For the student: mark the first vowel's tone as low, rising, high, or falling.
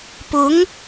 rising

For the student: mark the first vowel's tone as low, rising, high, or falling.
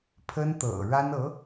high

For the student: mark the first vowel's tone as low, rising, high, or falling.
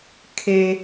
high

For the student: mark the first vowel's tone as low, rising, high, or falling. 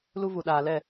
high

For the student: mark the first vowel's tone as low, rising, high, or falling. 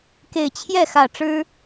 low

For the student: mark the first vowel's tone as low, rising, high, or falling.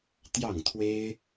falling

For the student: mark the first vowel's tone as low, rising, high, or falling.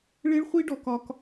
high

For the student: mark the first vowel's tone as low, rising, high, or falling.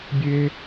high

